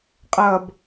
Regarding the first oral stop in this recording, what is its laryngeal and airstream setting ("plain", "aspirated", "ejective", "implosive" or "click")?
ejective